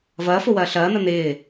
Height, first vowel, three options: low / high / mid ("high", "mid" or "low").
low